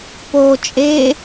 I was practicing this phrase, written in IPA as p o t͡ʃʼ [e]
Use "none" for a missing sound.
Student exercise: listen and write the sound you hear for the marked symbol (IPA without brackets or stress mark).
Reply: e